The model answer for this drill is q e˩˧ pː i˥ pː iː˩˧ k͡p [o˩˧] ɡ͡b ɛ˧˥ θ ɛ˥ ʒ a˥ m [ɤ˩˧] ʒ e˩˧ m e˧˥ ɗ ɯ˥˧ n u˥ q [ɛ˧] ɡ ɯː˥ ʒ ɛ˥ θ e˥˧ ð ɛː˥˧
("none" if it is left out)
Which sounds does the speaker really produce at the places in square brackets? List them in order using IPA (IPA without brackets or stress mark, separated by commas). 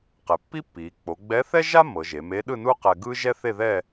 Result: o˩˧, ɤ˩˧, ɛ˧